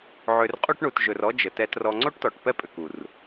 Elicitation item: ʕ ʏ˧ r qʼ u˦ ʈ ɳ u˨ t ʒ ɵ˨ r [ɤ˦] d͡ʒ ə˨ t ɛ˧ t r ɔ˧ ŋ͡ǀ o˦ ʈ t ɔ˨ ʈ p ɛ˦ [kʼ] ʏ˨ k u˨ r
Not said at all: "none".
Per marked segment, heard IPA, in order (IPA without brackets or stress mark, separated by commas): ɔ˦, pʼ